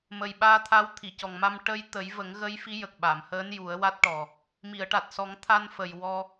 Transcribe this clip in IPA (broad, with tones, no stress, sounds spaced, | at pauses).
m ə˨˩ j ɓ aː˧ t̪ʰ a˧˥ w t̪ʰ i˨˩˨ c ɔ˨˩ ŋ m a˧ m ʈ ə˧ j t̪ ə˨˩˦ j v ə˨˩˦ ŋ ɣ ə˧˥ j f i˧˥ j ə˨˩ k̚ ɓ a˨˩˨ m h əː˧˥ n j u˨˩˦ ə̯ w a˦˥ t̚ ʈ ɔ˨˩ | m i˨˩˨ ə̯ ʈ a˨˩ t̚ s ɔ˨˩˦ ŋ t̪ʰ a˧ n f ə˨˩ j w ɔ˧